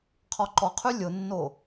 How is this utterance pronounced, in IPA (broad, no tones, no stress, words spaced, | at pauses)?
qʰɔǃɔqʰy lʲʊnːo